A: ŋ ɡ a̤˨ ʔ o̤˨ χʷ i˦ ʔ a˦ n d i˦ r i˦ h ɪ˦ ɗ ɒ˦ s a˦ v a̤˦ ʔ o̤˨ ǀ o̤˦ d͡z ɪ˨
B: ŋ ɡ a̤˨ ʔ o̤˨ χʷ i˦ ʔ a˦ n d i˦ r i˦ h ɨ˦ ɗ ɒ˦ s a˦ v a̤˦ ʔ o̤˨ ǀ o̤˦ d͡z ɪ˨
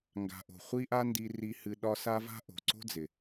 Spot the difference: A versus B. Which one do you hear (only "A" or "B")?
B